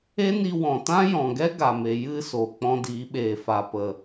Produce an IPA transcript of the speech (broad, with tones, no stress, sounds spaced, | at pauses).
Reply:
e˦ n i˧ w ɔ̃˨ t ã˦ j ɔ̃˨ ɡ ɛ˦ ɡ a˨ m e˨ j ɨ˦ s o˨ k͡p ɔ̃˧ d iː˨˦ ɓ eː˨ f a˨ p ə˨